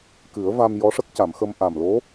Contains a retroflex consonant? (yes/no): yes